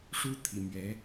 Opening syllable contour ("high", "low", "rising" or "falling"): high